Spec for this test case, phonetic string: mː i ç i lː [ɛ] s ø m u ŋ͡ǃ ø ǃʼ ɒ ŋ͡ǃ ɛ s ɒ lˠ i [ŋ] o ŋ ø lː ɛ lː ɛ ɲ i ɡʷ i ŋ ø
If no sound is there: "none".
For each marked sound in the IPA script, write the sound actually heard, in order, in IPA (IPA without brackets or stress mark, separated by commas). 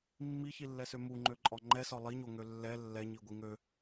ɛ, ɲ